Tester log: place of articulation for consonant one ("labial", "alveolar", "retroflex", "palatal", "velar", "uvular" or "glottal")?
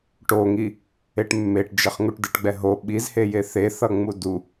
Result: retroflex